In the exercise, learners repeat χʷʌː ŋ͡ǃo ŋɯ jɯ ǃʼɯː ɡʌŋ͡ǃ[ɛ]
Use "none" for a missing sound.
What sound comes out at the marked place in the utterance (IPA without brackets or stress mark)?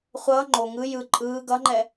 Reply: ɛ